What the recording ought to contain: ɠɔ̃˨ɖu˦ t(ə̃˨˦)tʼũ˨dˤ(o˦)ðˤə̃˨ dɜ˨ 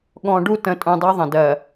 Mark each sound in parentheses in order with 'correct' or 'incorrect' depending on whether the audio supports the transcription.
correct, correct

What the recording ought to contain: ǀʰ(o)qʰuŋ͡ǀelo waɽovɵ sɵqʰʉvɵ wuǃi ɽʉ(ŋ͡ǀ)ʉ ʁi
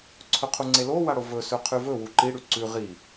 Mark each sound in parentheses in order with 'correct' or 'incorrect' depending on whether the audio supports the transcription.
incorrect: ɵ, incorrect: ǀ

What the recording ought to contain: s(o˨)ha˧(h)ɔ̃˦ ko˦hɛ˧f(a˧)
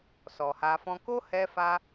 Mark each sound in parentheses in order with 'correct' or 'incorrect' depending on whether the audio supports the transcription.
incorrect: ɔ˨, incorrect: f, correct

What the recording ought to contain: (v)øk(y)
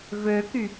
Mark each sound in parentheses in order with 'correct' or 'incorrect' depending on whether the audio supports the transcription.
correct, correct

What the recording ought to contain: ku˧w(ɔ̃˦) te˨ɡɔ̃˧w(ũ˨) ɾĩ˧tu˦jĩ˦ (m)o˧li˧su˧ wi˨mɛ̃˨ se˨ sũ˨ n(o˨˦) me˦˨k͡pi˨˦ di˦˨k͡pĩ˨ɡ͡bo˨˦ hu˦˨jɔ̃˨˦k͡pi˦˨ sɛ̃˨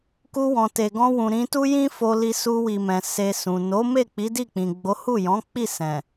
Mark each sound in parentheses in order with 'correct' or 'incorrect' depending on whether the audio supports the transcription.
incorrect: ɔ̃˨, correct, incorrect: f, correct

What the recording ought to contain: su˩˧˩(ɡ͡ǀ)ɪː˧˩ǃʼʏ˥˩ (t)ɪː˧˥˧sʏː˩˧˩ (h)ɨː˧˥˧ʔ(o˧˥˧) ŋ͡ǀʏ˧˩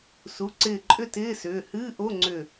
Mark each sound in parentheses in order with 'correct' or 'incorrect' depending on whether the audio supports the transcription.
incorrect: ǀ, correct, correct, correct

